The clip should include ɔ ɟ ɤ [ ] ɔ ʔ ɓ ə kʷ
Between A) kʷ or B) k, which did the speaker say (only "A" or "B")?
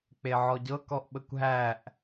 B